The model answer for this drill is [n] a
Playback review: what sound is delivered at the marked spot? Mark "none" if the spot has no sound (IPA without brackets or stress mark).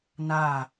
n